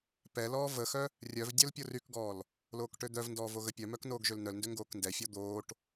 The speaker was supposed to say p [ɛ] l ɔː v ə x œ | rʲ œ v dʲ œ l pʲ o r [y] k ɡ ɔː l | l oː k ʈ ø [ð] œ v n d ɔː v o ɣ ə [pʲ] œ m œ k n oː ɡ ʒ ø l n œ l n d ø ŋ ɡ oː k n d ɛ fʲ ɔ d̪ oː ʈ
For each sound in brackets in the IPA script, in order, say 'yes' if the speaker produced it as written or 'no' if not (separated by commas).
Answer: yes, yes, no, yes